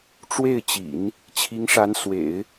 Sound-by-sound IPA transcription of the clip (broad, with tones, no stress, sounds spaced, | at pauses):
ʈ͡ʂ w e˥˩ ɪ̯ t͡ɕ ḭ˨˩˦ n | t͡ɕʰ i˧˥ ŋ ʂ a˧˥ n s w ḛ˨˩˦ ɪ̯